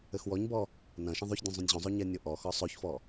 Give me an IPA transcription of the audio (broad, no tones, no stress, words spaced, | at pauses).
ɘxwɔɲbɔ | nɐ̃ ʃɐ̃ðˤoçdʲũ zˤũnʲʑũzˤo ɲɛnʲoʔɔxɔ sˤoçfɔ